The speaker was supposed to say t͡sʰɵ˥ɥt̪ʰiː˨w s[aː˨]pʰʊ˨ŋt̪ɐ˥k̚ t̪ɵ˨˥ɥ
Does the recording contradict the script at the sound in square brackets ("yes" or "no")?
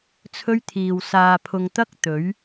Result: no